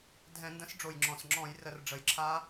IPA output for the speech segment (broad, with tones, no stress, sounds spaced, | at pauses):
dʱ ɛ̃˧˩˧ n d ə̃˨˥ s ɖ͡ʐ o˨˩ j ŋ͡ǁ ɔ̃˨˩ s ŋ͡ǁ ɔ̃˧˩˧ j r ə˧˩˧ r ɖ͡ʐ ə˨˩ j ǁʰ a˦˥